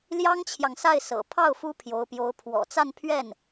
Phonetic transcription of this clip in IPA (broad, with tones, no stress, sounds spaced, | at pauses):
l j ɑ˥ ŋ t͡ɕʰ j ɑ˨ ŋ s a˥˩ ɪ̯ s ɤ̰˨˩ pʰ ɑ˥˩ ʊ̯ f u˥ pʰ j o˧˥ ʊ̯ p j o˧˥ ʊ̯ pʰ w ɔ̰˨˩ t͡s a˥˧ n pʰ ɥ ɛ˥˩ n